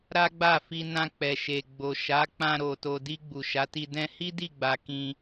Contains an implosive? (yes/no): no